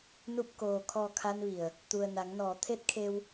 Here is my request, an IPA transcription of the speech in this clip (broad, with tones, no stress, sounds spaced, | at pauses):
n u˧˩ p̚ k oː˩ kʰ ɔː˩ kʰ a˧ n ʋ i˩ ə̯ | t̪ u˩ ə̯ n a˩˧ ŋ n ɔː˩˧ t̪ʰ e˧˥ t̚ kʰ e˧ w